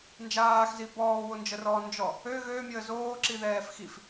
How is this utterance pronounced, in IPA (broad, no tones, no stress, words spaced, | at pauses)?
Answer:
nd͡ʒaːxzi bɔːwond͡ʒərɔː nd͡ʒɔ | ø ɣøːmʲəː zoːǁiðɛːf xif